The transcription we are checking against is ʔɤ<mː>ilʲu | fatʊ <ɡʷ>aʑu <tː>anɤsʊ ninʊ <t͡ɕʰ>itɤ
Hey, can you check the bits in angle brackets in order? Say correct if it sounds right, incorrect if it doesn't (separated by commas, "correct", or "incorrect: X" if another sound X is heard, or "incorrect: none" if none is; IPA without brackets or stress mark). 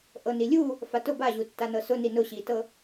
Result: incorrect: n, incorrect: b, correct, incorrect: ɕ